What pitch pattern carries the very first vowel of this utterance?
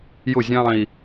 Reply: falling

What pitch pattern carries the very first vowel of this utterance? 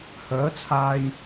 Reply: rising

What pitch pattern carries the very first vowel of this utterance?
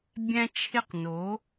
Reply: high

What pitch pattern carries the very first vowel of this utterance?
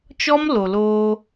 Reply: high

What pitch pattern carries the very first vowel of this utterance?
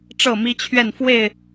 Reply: falling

